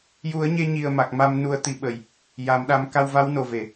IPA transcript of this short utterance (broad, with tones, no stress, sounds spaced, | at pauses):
j u˨˩˦ ə̯ ɲ e˧ ɲ i˨˩ ə̯ m a˨˩ k̚ m a˧ m n u˧ ə̯ t̪ i˧˥ ɓ ə˨˩ j | j a˨˩˨ m ɗ a˨˩˦ m k a˧ w v a˧˥ w n o˨˩ v e˨˩˨